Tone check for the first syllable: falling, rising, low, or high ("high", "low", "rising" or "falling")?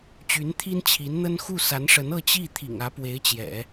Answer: rising